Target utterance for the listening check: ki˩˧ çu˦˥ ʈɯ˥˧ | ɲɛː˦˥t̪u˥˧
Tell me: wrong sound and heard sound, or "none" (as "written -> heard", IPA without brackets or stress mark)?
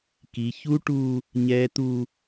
ɯ˥˧ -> u˥˧